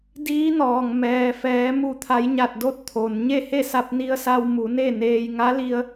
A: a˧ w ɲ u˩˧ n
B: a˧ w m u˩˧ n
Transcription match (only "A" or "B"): B